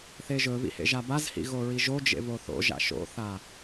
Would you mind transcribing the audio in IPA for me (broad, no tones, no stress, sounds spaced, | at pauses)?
θ e ʒ ɵ β ḭ h ḛ ʒ a b a z h ḭ ɣ o ɹ i ʒ o d͡ʒ ḛ β o θ o̰ ʒ a̰ ʃ o̰ θ a